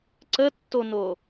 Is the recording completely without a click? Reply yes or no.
no